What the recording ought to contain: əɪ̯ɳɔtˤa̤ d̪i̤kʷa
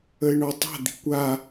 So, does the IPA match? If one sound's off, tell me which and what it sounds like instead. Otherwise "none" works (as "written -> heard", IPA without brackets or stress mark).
none